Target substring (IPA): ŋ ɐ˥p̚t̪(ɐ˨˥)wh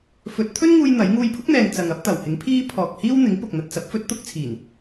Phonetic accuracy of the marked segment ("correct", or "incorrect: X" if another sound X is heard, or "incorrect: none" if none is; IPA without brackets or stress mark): incorrect: ɐ˨˩